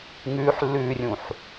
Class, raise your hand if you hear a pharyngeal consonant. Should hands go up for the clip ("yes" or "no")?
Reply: yes